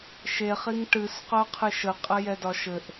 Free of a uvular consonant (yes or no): no